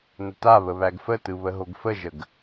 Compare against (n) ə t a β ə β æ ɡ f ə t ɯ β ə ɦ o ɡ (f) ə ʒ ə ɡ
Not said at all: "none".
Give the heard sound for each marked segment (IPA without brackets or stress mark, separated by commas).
n, f